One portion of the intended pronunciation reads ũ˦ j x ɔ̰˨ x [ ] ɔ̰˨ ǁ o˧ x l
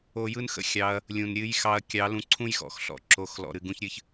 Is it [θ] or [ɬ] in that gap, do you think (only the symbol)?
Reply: ɬ